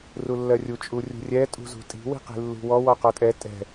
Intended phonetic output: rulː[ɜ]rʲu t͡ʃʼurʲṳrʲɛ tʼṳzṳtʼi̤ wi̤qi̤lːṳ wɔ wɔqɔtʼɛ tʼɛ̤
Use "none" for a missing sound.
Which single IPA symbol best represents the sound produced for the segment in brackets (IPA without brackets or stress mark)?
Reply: ɜ